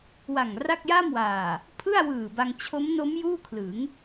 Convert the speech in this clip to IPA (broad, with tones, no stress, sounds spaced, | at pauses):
w a˨˩ ŋ r a˥˩ k̚ j a˥˩ m w aː˨˩ | pʰ ɯ˥˩ a̯ w ɯː˨˩ b a˧ ŋ t͡ɕʰ o˦˥ m n o˦˥ m j uː˥˩ kʰ l ɯ˩˦ ŋ